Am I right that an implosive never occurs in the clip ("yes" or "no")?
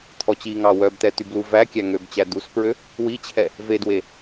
yes